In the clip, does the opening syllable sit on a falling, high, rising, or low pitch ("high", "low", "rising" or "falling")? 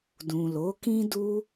low